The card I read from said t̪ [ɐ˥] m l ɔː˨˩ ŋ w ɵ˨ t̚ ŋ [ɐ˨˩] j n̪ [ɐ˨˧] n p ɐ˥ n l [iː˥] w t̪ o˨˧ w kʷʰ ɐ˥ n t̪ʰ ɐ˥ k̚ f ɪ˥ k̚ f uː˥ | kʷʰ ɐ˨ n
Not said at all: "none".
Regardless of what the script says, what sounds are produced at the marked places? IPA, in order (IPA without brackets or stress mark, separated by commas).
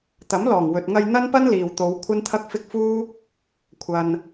ɐ˨˥, ɐ˧, ɐ˥, iː˨